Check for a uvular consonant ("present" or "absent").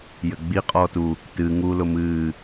present